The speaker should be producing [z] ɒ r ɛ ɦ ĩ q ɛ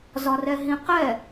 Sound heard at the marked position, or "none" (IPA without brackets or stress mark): z